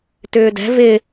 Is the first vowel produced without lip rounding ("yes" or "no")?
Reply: no